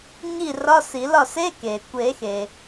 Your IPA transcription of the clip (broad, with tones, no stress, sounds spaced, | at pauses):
ɲ i˥˨ r ɒ˧˥˧ s i˨˩˦ l ɒ˥˨ s e˧˥˧ k e˩ kʷ e˨˩˦ x e˩